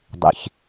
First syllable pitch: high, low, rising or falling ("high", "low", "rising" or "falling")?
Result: low